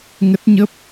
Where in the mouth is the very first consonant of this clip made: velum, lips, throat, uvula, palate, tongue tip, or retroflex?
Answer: velum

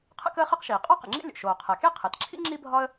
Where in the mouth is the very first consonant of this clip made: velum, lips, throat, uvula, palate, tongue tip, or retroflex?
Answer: uvula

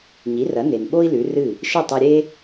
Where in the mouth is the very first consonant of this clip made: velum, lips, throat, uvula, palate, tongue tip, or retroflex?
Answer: palate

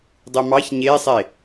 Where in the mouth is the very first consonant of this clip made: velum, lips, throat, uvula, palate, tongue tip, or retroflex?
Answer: tongue tip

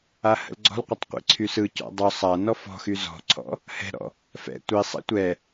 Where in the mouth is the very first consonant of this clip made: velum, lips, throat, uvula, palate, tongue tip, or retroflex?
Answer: throat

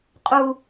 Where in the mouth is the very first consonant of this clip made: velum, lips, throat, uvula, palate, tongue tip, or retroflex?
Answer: uvula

